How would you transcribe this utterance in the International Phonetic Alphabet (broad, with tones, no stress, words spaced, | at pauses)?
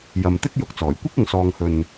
jɐ˨mt̪ɪ˥k̚jʊ˨k̚t͡sɔː˨˩j kʷɪ˥k̚ ʊ˨ŋsɔː˨ŋhɵ˨n